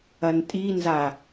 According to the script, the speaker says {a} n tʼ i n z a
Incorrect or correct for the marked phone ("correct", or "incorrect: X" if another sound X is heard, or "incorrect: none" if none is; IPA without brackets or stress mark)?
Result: incorrect: ɐ